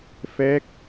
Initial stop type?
plain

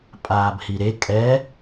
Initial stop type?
ejective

